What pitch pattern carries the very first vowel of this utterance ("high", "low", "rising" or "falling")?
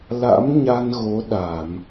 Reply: rising